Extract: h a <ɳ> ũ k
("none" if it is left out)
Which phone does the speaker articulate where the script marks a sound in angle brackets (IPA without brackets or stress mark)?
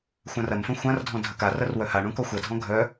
ɳ